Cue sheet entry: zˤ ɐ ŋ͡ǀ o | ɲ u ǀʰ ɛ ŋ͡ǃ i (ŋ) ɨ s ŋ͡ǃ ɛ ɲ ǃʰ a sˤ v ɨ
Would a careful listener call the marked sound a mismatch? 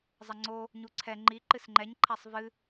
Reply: yes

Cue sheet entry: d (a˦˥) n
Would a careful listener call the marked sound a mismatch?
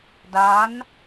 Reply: no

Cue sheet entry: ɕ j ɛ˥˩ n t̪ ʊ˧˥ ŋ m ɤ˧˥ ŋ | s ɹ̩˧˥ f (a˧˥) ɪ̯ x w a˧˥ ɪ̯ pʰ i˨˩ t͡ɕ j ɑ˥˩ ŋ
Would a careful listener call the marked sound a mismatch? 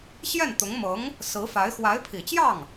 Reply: no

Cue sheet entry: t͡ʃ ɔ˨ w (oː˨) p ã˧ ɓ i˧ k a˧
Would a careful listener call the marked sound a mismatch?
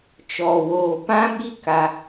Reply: no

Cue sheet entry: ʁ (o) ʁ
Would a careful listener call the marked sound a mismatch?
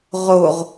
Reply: no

